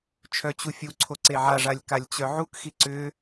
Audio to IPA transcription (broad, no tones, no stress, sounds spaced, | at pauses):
t͡ʃʰ œ t͡ɕ u fʲ u ǀʰ o ǀ e ʕ a ʐ a lʲ k a lʲ t͡ɕ œ ʕ u k x i ǀ ʏ